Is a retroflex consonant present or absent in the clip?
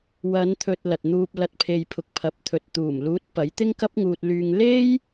absent